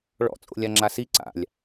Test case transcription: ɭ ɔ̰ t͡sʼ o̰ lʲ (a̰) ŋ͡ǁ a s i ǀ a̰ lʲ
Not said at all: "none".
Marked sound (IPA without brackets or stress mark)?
a